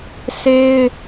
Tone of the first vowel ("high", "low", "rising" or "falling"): high